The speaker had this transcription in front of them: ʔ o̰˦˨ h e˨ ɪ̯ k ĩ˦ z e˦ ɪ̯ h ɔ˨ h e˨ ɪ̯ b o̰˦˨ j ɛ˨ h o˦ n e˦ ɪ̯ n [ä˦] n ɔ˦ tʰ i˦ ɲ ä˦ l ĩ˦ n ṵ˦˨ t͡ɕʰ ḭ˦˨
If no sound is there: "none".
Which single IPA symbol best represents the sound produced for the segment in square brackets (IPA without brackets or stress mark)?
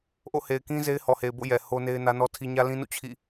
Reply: ä˦